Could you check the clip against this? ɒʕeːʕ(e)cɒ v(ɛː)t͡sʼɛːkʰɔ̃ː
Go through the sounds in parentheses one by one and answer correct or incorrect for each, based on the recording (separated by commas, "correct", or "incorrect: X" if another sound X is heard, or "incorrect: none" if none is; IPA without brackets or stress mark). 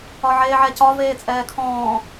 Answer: incorrect: ɛ, incorrect: eː